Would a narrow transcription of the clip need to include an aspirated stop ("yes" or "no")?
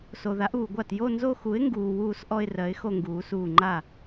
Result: no